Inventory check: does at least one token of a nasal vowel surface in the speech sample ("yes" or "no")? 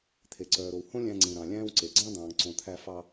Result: yes